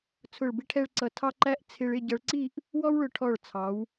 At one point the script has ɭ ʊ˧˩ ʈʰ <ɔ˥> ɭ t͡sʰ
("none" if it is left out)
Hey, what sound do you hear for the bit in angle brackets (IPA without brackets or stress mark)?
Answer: ɔ˧˩